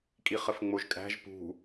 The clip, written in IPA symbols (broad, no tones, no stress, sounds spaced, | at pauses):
kʼ i χ ə f ŋ͡m o ʒ kʼ æ̤ ʒ p ṳ